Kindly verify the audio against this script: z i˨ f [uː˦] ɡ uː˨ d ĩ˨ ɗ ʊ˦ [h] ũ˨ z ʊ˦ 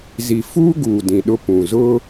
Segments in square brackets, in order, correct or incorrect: correct, incorrect

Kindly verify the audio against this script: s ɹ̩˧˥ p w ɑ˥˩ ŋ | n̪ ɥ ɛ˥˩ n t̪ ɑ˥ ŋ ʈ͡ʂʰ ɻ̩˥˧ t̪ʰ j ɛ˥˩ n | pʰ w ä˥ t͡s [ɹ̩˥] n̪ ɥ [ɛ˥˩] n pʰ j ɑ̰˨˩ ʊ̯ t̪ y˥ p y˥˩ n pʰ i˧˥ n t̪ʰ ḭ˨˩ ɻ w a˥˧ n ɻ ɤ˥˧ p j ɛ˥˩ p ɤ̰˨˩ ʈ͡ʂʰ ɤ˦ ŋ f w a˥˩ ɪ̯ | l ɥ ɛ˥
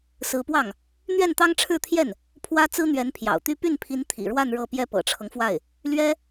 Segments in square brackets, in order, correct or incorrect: correct, incorrect

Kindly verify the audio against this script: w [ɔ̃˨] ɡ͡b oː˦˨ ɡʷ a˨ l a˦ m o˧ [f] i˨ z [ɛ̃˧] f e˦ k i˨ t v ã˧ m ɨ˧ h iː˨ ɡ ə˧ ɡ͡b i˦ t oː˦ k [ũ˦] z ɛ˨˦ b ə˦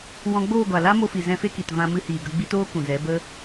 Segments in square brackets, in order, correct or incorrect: incorrect, correct, correct, incorrect

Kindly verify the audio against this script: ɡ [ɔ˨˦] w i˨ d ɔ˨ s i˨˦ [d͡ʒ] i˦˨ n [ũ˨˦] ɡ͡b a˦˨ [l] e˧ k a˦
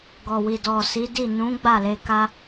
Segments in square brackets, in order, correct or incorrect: incorrect, incorrect, correct, correct

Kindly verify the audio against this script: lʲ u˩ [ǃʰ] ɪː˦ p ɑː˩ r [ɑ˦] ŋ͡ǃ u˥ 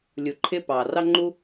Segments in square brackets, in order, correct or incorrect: correct, incorrect

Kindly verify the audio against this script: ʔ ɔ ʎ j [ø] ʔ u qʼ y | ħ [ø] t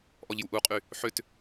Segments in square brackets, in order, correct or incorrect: incorrect, correct

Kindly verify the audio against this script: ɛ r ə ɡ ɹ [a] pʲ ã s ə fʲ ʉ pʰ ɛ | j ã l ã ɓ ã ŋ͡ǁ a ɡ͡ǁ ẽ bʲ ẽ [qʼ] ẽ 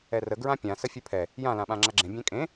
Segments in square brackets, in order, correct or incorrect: incorrect, incorrect

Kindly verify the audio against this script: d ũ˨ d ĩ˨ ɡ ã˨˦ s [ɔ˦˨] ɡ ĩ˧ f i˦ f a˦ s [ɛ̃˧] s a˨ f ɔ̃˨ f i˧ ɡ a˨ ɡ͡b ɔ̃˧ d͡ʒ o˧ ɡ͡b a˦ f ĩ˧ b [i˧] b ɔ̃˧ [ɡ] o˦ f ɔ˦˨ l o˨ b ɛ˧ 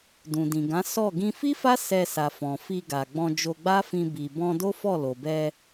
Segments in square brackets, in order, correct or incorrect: correct, incorrect, incorrect, incorrect

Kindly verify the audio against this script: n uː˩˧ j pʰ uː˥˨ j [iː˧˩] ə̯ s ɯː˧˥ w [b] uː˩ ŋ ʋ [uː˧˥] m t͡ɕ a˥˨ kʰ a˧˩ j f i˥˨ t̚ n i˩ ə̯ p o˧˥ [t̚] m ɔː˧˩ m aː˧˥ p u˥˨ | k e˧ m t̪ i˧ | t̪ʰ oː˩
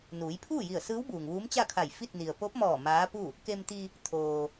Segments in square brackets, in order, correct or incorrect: incorrect, correct, correct, incorrect

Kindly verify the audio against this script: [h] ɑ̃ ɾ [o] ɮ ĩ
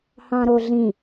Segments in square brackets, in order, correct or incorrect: correct, correct

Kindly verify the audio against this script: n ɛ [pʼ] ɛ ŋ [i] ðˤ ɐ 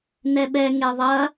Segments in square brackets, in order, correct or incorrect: incorrect, incorrect

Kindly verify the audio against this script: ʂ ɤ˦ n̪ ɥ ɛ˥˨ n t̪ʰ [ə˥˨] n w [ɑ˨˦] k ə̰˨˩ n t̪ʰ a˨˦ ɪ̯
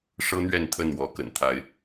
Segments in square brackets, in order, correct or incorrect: correct, incorrect

